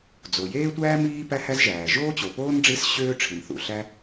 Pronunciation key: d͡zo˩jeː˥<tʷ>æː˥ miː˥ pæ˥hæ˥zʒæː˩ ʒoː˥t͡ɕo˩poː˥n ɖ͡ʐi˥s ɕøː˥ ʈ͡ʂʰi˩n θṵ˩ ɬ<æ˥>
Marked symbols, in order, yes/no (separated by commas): yes, yes